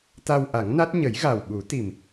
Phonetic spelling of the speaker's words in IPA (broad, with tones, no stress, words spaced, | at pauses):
t̪a˧wʔa˨˩˦ŋna˦˥t̚ ɲə˨˩˦jɣa˨˩wɓu˨˩˦t̪i˨˩m